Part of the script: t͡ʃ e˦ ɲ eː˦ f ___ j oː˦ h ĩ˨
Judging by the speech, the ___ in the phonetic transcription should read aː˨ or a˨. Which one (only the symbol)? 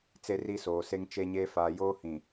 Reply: aː˨